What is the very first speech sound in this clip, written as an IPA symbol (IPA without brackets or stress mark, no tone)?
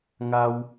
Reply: ŋ